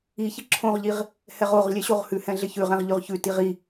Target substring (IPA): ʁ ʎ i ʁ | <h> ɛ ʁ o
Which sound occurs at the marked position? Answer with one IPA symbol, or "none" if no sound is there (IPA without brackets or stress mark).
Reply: h